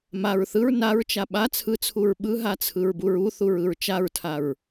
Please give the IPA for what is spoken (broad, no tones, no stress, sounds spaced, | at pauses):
m a ɹ θ ɯ ɹ n a ɹ t͡ʃ a ɓ a t͡sʰ ɯ t͡sʰ u ɹ ɓ ɯ ɦ a t͡sʰ ɯ ɹ b u ɹ u θ u ɹ ɯ ɹ t͡ʃ a ɹ tʰ a ɹ